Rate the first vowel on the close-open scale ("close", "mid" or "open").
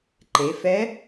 mid